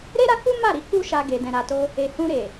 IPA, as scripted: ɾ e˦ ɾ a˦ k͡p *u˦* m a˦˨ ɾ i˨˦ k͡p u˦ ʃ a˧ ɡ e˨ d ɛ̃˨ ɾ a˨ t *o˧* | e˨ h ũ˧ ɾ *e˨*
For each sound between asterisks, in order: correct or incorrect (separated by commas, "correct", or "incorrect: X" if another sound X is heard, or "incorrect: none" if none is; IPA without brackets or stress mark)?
correct, correct, correct